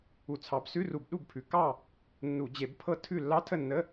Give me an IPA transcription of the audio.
u˧˩˧ t͡sʰ ɑ˨˦ b s ʉ˧˥˧ r u˧˩˧ b ɗ u˥˨ b pʰ ʉ˨˦ k ɑ˥˨ | nː u˧˩˧ d͡ʑ e˧˩˧ b pʰ ɤ˦˥ tʰ ʉ˥˨ lː ɑ˦˥ tʰ ə˥˨ nː ə˧˥˧

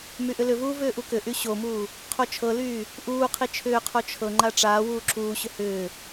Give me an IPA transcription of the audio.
m y ʔ ʏ l ʏ v uː v ʏː ʔ u k ʏ ʔ y ɕ o m uː | qʰ o t͡ʃʰ ɤ l yː | ʔ uː qʰ i t͡ʃʰ ʏː qʰ o t͡ʃʰ ɤ ŋ͡ǃ a ʈ͡ʂ aː w uː ǁ uː ɕ ʏ h ʏː

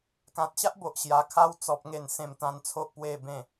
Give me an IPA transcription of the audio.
k ã˨ t̚ ɕ a˦ ʔ b o˨ ʔ ɕ j a˨˩ kʰ a˧ w t͡s ɔ˨ p̚ ŋ e˨˩ n s ẽ˨˩ m t̪ ã˨˩ n t͡sʰ o˨ ʔ p w e˨˩ b ẽ˨˩

